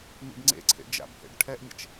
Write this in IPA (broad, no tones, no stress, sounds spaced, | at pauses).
m ḭ b ŋ͡ǀ ḛ ǀʰ ḛ d͡ʒ a̰ b h ḛ ɖ ʈʰ ɛ ʔ mʲ ɛ̰ t͡ʃ